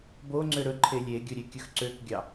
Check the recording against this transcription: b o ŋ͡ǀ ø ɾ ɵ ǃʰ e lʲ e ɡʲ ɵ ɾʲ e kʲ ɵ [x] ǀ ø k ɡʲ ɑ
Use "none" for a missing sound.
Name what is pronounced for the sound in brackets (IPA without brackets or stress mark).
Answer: x